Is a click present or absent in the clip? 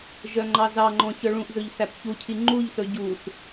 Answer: present